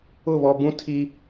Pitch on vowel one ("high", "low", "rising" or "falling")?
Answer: falling